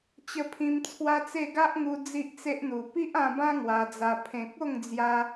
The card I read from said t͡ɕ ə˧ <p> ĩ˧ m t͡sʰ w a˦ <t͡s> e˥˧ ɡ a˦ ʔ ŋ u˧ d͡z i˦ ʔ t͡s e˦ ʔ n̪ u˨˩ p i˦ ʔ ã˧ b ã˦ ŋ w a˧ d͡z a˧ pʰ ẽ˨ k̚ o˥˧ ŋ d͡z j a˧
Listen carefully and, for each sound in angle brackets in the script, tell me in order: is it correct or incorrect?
incorrect: pʰ, correct

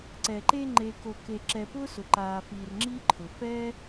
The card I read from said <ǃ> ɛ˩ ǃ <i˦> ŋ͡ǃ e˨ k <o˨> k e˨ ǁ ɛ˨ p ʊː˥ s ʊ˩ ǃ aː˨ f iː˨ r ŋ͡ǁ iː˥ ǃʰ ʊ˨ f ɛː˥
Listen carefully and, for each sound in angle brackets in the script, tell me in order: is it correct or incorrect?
incorrect: ǀ, incorrect: e˦, correct

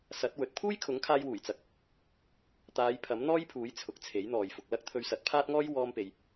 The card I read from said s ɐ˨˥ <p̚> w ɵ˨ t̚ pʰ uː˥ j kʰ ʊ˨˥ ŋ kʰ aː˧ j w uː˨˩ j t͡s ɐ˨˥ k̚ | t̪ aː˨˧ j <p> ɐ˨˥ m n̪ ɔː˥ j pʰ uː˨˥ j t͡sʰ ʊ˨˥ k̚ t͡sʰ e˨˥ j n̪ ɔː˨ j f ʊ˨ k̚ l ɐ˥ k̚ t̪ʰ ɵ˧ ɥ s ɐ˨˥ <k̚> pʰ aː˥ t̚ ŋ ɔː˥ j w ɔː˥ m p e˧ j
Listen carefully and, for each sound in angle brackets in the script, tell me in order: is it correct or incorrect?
incorrect: t̚, incorrect: pʰ, incorrect: t̚

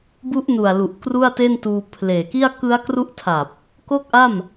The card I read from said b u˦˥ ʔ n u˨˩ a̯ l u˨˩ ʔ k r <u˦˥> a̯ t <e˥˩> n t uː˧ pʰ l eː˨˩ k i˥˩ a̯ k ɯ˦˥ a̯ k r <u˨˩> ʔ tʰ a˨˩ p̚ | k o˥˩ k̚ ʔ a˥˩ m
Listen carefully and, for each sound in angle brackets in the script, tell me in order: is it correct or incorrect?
incorrect: u˥˩, correct, incorrect: u˦˥

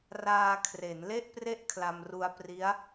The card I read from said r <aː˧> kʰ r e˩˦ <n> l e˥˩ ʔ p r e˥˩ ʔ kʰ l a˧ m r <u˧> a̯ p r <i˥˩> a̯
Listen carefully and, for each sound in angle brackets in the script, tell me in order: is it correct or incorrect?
correct, correct, correct, incorrect: i˦˥

